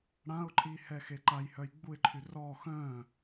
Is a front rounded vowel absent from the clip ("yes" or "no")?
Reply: no